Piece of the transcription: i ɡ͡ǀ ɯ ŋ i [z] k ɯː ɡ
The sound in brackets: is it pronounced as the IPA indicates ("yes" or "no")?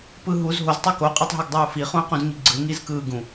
yes